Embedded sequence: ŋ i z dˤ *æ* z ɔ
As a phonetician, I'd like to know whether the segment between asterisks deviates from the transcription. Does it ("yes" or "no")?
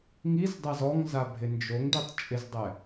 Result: yes